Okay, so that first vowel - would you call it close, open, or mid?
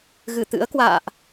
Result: close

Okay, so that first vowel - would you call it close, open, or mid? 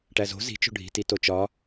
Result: open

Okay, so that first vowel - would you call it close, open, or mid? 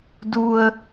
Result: close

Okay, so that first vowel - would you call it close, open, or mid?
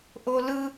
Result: mid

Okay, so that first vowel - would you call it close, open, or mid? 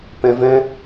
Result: mid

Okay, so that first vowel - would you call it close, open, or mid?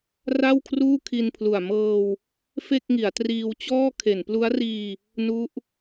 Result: open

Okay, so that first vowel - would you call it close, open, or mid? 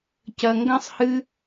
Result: open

